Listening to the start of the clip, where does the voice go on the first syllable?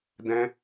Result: high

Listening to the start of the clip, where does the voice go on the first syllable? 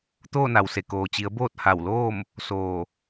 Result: falling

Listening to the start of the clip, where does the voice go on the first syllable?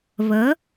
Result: rising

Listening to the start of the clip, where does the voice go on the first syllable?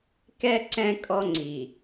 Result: high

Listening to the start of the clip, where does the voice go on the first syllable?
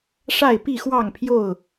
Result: falling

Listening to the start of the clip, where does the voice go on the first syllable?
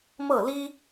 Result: falling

